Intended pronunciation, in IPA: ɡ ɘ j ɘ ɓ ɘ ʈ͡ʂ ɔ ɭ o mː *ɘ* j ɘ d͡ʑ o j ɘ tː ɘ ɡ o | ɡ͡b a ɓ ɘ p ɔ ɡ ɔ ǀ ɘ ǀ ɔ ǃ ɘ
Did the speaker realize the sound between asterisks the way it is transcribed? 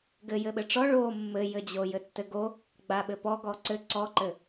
yes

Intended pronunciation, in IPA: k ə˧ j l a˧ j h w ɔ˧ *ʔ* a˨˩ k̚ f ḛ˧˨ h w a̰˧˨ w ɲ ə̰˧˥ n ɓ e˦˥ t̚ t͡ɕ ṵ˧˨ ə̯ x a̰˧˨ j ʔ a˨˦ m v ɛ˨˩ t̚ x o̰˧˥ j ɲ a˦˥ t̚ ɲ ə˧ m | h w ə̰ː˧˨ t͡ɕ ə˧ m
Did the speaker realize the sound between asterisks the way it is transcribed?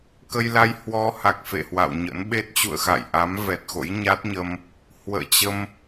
no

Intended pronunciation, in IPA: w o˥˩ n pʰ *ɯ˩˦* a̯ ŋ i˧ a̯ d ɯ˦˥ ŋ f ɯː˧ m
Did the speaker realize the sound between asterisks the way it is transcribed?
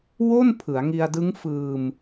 yes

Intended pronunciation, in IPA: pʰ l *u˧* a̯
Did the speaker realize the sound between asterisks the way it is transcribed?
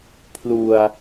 no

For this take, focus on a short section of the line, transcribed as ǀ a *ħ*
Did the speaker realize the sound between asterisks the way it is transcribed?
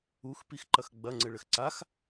no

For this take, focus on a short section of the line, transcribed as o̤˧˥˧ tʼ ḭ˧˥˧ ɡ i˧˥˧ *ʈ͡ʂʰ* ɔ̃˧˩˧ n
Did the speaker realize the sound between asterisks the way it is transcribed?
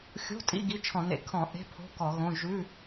no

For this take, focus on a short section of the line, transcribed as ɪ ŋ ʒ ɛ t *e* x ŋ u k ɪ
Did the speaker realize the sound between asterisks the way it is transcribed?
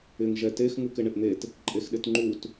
yes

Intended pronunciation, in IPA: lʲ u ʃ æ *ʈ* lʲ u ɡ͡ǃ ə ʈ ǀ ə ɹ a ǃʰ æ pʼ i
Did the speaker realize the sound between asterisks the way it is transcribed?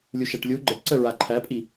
yes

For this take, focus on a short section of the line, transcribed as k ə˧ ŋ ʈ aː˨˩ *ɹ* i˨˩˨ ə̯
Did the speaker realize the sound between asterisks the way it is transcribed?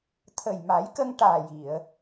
no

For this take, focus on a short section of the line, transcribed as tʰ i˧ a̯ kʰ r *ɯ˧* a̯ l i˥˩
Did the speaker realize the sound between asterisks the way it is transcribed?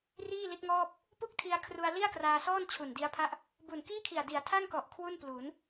no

